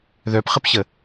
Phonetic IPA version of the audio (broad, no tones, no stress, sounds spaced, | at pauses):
ð œ p χ ə p ɕ ə